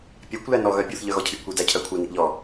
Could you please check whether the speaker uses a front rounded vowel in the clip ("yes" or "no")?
yes